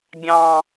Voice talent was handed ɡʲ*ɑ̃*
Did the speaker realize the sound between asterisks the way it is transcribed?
yes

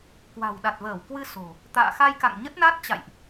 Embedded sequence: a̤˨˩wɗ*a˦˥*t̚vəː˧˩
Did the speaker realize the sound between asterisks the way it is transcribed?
no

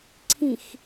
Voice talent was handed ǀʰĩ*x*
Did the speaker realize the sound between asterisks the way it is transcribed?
yes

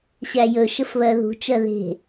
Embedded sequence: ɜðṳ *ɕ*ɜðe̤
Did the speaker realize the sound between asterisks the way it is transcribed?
no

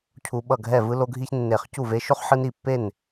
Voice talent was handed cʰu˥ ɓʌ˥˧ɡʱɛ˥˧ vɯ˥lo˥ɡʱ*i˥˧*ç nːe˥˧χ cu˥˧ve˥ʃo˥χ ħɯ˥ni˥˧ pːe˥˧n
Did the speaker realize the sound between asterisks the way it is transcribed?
no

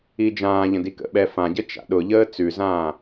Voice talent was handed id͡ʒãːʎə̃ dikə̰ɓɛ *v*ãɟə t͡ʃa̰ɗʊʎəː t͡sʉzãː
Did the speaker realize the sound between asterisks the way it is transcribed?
no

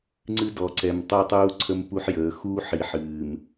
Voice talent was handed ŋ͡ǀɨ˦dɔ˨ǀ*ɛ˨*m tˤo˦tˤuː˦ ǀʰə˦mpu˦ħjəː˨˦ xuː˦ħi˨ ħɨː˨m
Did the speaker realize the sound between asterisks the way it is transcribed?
yes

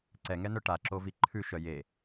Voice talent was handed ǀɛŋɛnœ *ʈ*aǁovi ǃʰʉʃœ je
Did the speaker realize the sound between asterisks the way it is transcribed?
yes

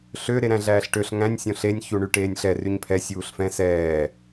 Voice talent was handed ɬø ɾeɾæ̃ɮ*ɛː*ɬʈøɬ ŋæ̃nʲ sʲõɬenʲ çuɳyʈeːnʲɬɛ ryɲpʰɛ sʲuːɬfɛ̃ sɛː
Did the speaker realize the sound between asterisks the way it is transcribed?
no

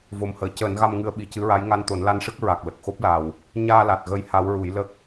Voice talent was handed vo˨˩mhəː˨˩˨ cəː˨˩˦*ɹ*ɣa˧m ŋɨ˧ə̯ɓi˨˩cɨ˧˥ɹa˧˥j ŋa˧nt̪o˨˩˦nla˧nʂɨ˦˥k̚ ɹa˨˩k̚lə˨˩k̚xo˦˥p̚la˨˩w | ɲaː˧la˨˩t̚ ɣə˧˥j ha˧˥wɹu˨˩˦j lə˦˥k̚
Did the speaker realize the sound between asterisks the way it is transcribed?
no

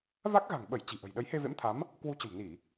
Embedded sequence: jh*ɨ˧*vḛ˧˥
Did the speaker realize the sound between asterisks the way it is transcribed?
no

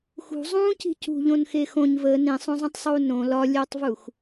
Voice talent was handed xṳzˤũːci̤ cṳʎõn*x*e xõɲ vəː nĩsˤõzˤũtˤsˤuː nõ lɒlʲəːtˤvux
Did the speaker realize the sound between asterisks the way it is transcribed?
yes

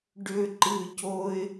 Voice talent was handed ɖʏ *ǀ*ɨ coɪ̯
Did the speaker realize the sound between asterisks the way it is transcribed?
no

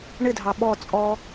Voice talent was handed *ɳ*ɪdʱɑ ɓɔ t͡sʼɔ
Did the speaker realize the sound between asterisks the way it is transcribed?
yes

